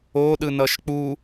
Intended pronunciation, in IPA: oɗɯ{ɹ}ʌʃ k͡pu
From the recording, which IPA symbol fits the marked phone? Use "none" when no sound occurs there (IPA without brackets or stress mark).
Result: n